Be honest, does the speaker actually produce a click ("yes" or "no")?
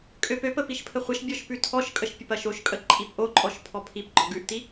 yes